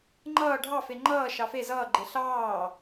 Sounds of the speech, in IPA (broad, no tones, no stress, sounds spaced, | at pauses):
ŋ͡ǃ ʌː ɖʱ ɑ f e ŋ͡ǃ ʌː ʃ ɑ f e z ʌː ɡ͡ǃ e ɬ ɑː